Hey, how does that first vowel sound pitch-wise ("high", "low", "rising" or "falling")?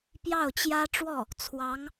falling